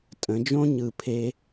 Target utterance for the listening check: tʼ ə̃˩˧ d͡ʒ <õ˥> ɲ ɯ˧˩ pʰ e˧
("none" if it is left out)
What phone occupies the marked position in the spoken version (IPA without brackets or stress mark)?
õ˥